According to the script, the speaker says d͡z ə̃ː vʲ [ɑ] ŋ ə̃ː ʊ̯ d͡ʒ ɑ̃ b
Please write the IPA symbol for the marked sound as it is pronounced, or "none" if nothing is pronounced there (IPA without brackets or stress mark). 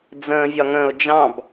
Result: ɒ